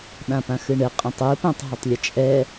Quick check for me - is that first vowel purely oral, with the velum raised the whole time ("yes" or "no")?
no